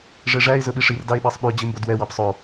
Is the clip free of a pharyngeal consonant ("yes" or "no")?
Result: yes